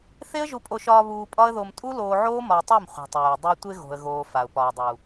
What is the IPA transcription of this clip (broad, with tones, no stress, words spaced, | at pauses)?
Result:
θe˦ə̯ʒu˧pʼo˧ʃɒː˧ βuː˧pʼɒ˦ə̯ðo˧m tʼu˦loː˧ʕoː˦ mɒ˧ɪ̯tˤɛ˦˨m χʷi̤˨tˤyː˨ə̯ dˤɪ˧ə̯ tʷe˧ɣo̤˨ə̯ɣoː˨ fa˨ʊ̯pɒ˨ə̯dˤu˨